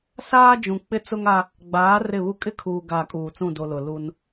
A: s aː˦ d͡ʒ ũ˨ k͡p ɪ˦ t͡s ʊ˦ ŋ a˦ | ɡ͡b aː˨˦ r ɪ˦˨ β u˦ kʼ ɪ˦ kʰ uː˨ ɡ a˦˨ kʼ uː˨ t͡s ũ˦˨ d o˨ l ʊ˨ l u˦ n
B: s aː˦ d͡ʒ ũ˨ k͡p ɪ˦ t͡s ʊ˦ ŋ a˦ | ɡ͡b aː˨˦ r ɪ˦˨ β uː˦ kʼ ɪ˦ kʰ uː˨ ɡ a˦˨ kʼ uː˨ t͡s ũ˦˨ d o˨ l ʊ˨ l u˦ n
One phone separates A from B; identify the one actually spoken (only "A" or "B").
A